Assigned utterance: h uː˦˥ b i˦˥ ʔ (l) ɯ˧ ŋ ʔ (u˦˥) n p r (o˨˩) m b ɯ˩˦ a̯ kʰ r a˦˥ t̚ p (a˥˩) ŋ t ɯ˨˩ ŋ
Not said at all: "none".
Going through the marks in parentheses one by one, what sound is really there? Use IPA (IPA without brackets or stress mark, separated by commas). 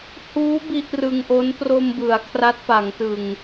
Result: r, o˦˥, o˧, a˩˦